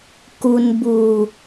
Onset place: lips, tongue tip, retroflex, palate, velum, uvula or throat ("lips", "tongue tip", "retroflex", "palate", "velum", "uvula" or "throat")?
velum